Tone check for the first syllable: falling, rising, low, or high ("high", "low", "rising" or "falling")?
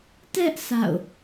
high